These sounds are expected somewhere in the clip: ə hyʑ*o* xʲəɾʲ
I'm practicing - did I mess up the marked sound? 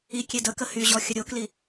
yes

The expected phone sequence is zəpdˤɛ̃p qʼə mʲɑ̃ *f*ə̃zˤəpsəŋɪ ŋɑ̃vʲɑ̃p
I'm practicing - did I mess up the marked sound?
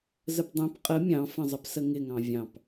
no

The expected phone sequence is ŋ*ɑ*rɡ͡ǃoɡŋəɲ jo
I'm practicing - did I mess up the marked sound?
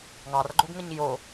no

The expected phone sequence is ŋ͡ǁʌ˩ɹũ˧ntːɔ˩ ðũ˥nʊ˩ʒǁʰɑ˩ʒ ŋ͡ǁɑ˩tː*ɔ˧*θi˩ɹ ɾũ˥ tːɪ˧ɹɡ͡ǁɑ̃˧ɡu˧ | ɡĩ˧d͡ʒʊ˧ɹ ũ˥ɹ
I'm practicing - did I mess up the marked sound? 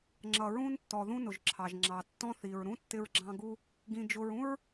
yes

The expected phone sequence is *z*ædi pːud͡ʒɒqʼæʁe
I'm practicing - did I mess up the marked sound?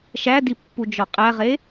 yes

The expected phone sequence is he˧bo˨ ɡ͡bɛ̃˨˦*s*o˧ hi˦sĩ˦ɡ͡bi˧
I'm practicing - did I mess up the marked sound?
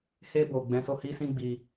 no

